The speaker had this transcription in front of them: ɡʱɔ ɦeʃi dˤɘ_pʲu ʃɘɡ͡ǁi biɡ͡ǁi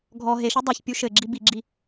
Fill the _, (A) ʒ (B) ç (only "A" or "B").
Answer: B